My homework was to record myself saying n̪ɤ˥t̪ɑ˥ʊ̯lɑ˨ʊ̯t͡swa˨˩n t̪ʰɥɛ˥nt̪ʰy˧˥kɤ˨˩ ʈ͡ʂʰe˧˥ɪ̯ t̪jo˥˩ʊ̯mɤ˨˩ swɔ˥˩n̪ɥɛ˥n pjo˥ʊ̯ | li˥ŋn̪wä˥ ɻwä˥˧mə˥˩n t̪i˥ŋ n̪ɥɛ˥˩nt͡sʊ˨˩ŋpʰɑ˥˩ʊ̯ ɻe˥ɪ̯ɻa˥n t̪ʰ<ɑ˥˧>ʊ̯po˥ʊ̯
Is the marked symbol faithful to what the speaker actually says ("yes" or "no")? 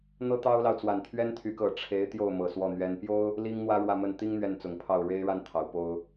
no